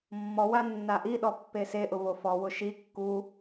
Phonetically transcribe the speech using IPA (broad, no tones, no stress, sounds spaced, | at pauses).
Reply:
mː ɔ w a nː a ʔ i ɗ ɔ pː e s e ʔ ʊ v o f ɔ w ʊ ʃ i kː u